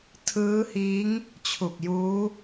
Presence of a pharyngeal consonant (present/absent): absent